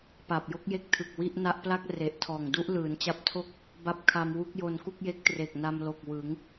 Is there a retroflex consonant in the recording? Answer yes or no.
no